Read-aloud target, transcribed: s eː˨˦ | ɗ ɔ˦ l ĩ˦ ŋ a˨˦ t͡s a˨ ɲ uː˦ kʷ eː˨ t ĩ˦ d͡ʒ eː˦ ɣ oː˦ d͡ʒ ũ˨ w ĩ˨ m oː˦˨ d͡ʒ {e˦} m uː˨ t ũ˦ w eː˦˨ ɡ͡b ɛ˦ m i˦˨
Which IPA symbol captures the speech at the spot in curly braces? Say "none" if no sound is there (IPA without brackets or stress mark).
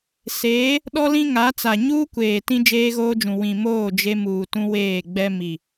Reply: e˦